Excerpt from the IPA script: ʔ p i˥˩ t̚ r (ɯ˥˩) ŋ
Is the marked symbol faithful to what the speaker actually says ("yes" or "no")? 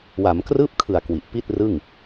yes